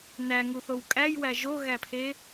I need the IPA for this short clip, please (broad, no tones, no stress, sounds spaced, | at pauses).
n æ ŋ u θ o w kʼ æ j w æ ʒ o ɣ æ pʰ e